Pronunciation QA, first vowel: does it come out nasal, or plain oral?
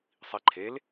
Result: oral